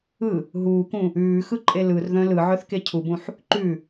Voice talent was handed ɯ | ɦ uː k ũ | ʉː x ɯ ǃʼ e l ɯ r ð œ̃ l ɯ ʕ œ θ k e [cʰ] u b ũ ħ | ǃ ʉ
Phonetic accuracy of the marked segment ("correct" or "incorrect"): correct